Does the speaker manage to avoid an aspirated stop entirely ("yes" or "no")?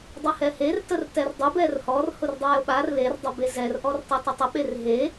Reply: yes